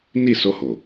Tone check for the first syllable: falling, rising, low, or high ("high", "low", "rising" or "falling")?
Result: falling